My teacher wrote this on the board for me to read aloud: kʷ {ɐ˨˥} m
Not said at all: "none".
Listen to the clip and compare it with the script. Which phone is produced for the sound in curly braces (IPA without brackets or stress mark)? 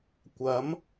ɐ˨˥